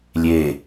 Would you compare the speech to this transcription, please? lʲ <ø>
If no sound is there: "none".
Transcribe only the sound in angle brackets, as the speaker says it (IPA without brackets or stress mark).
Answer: e